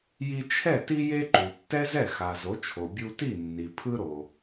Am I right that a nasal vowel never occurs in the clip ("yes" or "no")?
yes